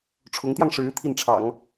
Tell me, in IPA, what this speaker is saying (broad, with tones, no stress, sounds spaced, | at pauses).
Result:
ʈ͡ʂʰ ʊ˧˥ ŋ t̪ j ɑ˧ ŋ ʂ ɻ̩˧˥ t̪ʰ i˥˩ n ʈ͡ʂʰ ɑ̰˨˩˦ ŋ